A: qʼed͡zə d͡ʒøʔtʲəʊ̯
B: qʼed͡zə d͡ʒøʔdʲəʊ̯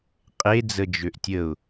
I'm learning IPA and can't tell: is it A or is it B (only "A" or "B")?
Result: A